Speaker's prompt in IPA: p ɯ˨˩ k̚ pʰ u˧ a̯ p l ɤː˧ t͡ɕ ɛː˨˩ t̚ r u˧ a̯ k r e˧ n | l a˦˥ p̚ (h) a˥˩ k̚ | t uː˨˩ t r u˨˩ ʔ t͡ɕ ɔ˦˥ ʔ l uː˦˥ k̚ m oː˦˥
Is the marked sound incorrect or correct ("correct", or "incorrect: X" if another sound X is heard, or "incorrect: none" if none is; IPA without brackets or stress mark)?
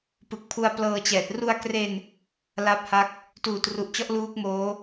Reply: correct